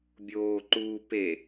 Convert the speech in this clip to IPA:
bʲoːǃuː pe

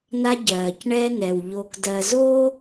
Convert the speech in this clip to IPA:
na˦ɟɜː˨cɳɛ˦nɛ˨w ʎo˨kdɜ˨zoː˦

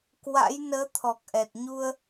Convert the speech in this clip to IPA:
kwa̰˧˥jnəː˨˦ t̪ʰɔ˨˩k̚ʔɛ˨˩t̚ ɲu˧ə̯

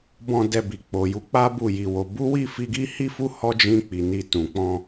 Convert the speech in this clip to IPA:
bɔ̃˧ dɛ˧bi˨ k͡po˨ju˧k͡pa˦ bu˦˨ji˧wo˧ bu˦wi˦˨fi˧ɡi˦ hi˦fu˦ hɔ˦d͡ʒĩ˧ k͡pi˨ni˧tũ˨ k͡pɔ̃˧

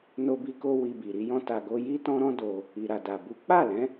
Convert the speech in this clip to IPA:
no˦bi˦ko˦ wi˧bi˨ ɾi˧jɔ̃˧ ta˧ɡo˦ ji˦tɔ̃˦ɾɔ̃˦ do˧ | i˨ɾa˨da˨ bu˨˦k͡pa˦˨lɛ̃˨˦

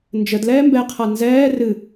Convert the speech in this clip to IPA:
nd͡ʒəd lɛːmbɛqʰa nzɛː rɨ

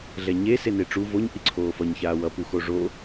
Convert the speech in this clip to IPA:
ɮɛɲe seneʈ͡ʂu voɲ ʔiǀʰoːfʌɲ çaːwʌ puxoʐo

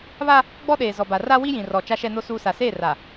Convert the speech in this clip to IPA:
βa˦ | ɡ͡bɔ˦ɗeː˨ zɔ˨ba˨ ra˦ wi˦jĩ˨rɔ˨ t͡ʃa˦ʃɛ˦no˦ suː˦ sa˨seː˦˨ra˨

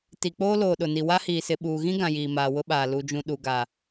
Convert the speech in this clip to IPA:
ti˨k͡poː˦ loː˨ ɗʊ˨ni˨ wa˦hiː˨sɪ˨ ɓuː˨ɣĩ˦ɡã˨ jiː˨maː˨wʊ˦ɓaː˨ lu˨d͡ʒũ˨ ɗu˨ ɡa˨

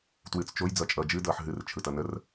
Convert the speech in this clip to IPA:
twɨːt͡st͡ʃoj d͡zʌt͡ʃʼʌːd͡ʒɨ dʌːħɦɨr t͡ʃʰɯtʌnər

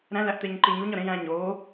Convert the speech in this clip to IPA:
ɾæ̃ læʔt̪eɲǃiɲuɲ ɒɾẽj æ̃ ɲoː

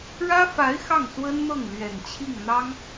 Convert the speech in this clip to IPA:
ɻä˥fa˧˥ɪ̯ xɑ˥˩ŋswə˥nn̪ɤ˥˩ŋ lɥɛ˨˩nt͡ɕʰi˥˩ŋ n̪ɑ˥ŋ

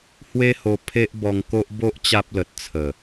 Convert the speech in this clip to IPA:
hwe˦ho˧ pʰe˦ʔbɔ˧ŋko˦ʔ bo˦ʔ t͡ɕa˦p̚lə˨t̚t͡sʰə˨˩

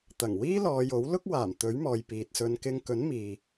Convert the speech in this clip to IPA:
t̪ɐ˨˩ŋ wiː˥lɔː˨˧jo˨˥w lʊ˥k̚waː˨˩m t̪ɵ˨˥ɥmɔː˨j piː˨t̚sɵ˨˧nkɪ˧ŋ kɵ˨˥nmiː˨

